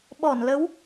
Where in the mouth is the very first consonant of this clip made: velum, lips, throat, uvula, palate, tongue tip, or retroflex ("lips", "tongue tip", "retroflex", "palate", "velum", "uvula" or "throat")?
lips